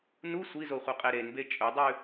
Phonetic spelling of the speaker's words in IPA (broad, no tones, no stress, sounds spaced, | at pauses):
n u sʷ i z o χʷ ɐ qʼ e ɾ e n b e t͡ʃʼ ɵ dˤ ʉ